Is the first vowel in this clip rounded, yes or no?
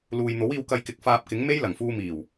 yes